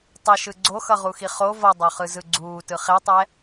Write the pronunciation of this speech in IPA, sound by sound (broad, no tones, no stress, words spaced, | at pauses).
tˤɛʃɯ ɡ͡ǀoxʌʁuxi χo vʌdˤoχɯ zɯɡ͡ǀuːtɯ χetˤɛ